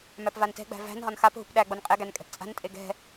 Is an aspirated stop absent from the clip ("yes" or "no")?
yes